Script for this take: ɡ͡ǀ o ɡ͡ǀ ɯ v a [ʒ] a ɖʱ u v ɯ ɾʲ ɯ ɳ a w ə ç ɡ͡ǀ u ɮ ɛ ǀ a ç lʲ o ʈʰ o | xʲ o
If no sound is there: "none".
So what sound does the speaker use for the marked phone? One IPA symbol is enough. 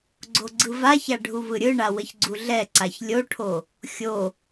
ç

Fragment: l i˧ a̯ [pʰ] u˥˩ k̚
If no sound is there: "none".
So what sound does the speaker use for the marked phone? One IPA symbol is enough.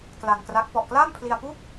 p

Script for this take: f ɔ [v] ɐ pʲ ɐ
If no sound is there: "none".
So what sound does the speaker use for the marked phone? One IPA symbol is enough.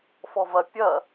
v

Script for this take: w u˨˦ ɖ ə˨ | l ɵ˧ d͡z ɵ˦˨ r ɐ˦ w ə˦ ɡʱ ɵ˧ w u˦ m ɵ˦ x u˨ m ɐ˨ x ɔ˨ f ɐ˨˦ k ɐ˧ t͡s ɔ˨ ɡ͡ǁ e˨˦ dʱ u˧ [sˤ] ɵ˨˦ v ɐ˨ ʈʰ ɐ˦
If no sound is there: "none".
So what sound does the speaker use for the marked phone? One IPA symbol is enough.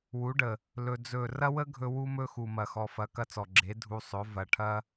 sˤ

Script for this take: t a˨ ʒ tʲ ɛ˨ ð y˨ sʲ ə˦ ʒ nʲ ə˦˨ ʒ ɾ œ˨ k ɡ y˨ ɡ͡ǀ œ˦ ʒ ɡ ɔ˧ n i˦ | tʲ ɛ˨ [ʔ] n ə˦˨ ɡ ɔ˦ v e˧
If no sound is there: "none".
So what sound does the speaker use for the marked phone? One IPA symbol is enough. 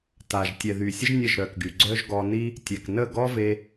k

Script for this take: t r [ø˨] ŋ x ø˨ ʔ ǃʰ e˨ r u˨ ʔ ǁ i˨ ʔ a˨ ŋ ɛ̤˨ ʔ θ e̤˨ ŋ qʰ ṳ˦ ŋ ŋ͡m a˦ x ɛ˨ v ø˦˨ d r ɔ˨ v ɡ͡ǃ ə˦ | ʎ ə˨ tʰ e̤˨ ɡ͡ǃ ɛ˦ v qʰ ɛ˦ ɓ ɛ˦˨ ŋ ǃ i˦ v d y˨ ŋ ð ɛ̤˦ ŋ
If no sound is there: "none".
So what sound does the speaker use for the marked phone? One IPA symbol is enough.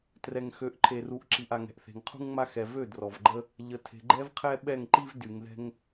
ɛ˨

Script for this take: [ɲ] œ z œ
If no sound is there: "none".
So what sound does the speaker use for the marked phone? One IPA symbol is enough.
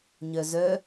ɲ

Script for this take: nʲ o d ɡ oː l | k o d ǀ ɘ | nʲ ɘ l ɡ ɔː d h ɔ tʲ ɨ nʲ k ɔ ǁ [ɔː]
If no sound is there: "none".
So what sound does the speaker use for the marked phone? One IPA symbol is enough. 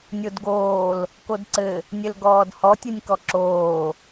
oː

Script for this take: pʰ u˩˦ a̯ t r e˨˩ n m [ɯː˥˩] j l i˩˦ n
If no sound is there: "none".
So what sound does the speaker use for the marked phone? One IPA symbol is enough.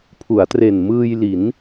ɯː˧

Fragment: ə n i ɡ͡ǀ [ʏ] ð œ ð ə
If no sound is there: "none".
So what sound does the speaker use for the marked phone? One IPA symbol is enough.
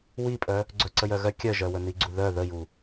u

